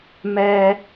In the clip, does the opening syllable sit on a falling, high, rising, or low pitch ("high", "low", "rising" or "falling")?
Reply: high